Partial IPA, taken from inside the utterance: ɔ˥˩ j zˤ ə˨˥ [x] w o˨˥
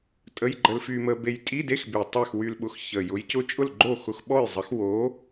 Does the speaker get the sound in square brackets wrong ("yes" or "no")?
no